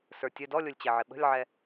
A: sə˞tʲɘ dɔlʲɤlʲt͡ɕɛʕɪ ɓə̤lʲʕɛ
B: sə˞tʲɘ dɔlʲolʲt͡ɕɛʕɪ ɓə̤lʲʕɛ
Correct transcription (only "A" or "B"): B